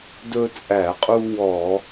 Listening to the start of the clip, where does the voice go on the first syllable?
high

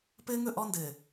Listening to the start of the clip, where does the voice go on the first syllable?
high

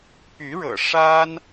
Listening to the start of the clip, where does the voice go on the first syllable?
rising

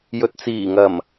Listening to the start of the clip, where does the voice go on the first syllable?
low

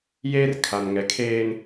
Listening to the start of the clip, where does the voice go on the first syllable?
high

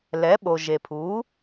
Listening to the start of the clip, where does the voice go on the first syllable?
rising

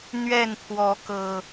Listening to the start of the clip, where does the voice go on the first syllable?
falling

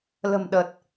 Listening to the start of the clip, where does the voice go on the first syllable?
low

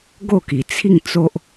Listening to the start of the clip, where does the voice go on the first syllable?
falling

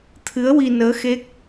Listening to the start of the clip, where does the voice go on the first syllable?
rising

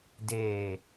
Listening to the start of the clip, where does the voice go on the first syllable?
low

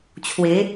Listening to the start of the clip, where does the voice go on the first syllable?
rising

